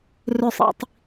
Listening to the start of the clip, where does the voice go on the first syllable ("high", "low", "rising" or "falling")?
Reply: falling